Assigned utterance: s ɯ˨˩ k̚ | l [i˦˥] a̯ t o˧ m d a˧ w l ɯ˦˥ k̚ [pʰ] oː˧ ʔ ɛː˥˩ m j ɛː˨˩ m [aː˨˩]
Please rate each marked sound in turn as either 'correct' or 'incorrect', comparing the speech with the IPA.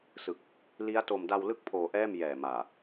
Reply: correct, correct, correct

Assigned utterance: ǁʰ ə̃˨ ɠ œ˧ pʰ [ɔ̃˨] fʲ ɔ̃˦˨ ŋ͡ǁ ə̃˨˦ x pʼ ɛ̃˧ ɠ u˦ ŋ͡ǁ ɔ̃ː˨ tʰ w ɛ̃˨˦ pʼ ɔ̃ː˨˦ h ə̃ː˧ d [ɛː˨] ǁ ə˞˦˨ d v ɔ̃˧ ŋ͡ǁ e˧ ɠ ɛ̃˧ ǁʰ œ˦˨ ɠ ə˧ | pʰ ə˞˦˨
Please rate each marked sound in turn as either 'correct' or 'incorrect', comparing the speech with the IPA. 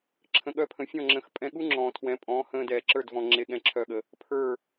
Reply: incorrect: ə̃˨, correct

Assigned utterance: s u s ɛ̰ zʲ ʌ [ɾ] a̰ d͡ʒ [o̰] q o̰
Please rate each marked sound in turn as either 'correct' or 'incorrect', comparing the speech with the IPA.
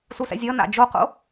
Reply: incorrect: n, incorrect: o

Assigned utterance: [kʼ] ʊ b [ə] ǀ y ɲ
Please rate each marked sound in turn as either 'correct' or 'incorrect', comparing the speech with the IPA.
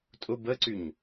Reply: incorrect: tʼ, correct

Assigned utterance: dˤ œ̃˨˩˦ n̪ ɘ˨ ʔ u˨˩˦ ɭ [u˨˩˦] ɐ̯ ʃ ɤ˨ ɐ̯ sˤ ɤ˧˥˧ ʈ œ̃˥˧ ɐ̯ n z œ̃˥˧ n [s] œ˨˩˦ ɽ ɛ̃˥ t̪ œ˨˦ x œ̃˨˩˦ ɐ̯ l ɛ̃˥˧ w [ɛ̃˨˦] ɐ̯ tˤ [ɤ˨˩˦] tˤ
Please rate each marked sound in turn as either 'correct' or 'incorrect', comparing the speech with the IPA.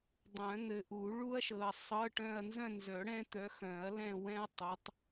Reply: incorrect: u˥, incorrect: z, incorrect: ɛ̃˥, incorrect: ɤ˨˦

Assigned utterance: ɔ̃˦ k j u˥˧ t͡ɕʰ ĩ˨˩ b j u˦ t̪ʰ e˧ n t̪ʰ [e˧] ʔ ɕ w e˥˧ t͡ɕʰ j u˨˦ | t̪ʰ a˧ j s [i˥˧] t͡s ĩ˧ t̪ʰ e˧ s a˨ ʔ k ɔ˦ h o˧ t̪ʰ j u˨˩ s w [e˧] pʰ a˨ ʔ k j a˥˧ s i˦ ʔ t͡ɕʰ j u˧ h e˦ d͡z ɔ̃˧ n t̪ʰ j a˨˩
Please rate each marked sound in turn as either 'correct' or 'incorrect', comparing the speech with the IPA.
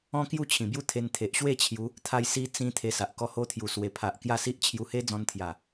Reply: incorrect: e˨, incorrect: i˧, incorrect: e˨˩

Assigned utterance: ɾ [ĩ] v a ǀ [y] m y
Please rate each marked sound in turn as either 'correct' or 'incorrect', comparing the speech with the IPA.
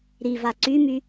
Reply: incorrect: i, correct

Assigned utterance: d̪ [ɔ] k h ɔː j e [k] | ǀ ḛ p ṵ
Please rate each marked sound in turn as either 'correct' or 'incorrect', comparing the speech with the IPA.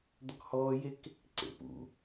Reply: correct, correct

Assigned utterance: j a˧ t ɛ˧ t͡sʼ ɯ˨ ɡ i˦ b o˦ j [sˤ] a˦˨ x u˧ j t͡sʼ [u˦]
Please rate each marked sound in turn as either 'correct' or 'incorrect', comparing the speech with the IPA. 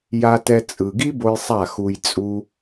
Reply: correct, correct

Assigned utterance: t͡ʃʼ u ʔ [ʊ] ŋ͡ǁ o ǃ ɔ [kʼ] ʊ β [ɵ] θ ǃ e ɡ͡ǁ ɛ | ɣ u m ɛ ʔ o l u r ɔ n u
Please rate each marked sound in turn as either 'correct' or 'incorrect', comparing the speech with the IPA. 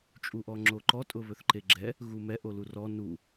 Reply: incorrect: ɔ, incorrect: tʼ, correct

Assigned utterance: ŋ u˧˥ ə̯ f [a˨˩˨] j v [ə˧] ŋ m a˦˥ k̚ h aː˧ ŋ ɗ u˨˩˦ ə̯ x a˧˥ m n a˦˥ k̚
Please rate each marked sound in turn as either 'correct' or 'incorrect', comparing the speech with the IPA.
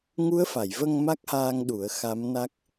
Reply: correct, correct

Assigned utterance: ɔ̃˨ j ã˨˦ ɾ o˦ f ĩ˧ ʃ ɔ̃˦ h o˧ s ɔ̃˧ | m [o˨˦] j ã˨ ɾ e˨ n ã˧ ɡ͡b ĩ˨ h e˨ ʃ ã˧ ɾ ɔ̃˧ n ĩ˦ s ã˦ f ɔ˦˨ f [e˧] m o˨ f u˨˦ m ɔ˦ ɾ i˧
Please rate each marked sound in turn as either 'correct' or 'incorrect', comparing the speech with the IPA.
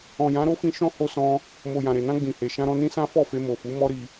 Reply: incorrect: o˨, correct

